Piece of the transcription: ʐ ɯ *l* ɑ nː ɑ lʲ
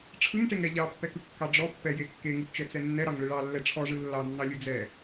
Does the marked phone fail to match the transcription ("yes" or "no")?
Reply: yes